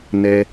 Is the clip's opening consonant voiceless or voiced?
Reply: voiced